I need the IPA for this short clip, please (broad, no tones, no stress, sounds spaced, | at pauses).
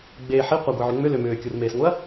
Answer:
ɡ͡b e ħ i qʷ ɐ ɡʷ i ʕ ʏ ŋ͡m ʏ l ʏ m ʏː kʲ u r m eː s ŋʷ ɯ ɐ̯